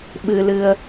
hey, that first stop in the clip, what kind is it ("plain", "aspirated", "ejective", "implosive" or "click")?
implosive